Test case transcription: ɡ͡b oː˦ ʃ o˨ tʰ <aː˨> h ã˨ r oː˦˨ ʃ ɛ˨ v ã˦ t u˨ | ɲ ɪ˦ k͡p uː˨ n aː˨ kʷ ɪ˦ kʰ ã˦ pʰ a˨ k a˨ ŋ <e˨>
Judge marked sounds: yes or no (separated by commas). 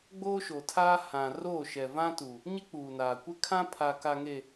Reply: no, yes